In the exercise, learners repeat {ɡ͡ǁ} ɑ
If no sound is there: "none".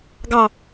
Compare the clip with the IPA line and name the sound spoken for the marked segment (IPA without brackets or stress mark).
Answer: ɡ